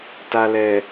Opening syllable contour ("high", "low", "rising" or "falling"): low